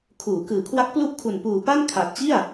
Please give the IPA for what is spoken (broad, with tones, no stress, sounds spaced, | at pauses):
kʰ uː˩˦ k ɯː˨˩ kʰ w a˦˥ k̚ p l u˦˥ ʔ kʰ u˨˩ n p uː˨˩ p a˥˩ n kʰ a˨˩ t̚ t͡ɕ i˥˩ a̯